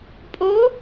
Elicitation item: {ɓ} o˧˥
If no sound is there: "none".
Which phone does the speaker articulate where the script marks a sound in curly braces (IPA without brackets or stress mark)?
pʼ